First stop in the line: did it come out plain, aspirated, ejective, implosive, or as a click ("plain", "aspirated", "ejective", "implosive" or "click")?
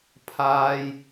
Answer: aspirated